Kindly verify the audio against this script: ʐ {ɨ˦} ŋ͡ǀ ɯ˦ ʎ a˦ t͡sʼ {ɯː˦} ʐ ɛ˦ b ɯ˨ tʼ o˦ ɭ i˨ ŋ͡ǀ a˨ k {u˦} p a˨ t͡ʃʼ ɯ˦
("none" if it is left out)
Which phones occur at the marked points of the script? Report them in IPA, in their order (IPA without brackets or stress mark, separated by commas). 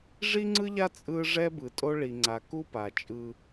i˦, ɯ˦, u˦